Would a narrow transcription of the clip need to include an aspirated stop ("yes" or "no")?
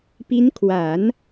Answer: yes